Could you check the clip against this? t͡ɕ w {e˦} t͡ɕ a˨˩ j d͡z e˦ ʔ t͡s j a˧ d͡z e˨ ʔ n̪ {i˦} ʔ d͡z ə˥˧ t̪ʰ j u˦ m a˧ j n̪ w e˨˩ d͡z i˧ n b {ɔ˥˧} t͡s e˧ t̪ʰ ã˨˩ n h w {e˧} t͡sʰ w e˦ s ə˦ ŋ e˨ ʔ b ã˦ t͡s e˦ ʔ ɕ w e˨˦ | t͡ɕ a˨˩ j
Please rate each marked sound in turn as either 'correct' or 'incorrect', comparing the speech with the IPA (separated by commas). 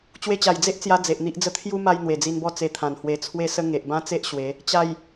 incorrect, correct, correct, correct